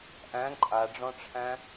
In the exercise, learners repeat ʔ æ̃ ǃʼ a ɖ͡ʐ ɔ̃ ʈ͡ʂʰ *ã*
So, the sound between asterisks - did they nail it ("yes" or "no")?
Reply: no